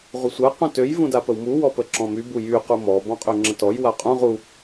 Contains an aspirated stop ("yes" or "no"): no